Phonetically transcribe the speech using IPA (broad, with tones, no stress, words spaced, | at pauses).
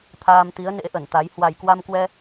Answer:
t̪ʰaː˧mt̪i˨˦ə̯nḛ˧˥ʔə˧˩n t̪a˨˦j hwa˨˩jkwa˧mkwɛ˧